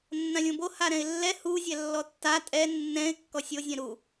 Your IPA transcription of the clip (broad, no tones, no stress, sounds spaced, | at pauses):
nː ã lʲ õ b o h a ɾ ɛ̃ ɪ̯ lː ɛ h u zʲ ɛ lː ɔ tː a tʼ ɛ nː ɛ̃ ɪ̯ kː ɔ sʲ o zʲ ɛ̃ ɾ u